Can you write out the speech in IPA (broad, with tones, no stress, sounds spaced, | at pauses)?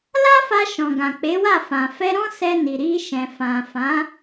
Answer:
l a˦ f a˧ ʃ ɔ̃˨ ɡ ã˨ k͡p e˨˦ w a˦˨ f ã˨ f ɛ˧ ɾ ɔ̃˦ s ɛ˧ n i˨ ɾ i˧ ʃ ɛ̃˨ f ã˨ f ã˨˦